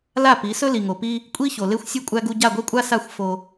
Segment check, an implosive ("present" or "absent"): absent